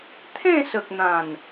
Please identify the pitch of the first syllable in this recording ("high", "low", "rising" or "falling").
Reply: falling